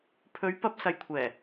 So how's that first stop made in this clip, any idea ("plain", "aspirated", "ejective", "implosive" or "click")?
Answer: aspirated